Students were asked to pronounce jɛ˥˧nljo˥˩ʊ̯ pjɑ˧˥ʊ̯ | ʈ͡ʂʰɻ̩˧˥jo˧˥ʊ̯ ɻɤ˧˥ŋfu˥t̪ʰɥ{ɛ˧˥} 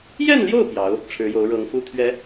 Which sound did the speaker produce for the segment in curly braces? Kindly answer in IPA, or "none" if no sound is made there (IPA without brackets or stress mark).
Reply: ɛ˧˥